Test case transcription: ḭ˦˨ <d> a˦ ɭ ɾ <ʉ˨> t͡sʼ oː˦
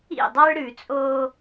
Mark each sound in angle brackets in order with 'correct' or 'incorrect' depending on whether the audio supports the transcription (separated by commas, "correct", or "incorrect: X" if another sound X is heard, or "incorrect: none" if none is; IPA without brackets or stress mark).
incorrect: dˤ, correct